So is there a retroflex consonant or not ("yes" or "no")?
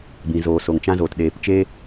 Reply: no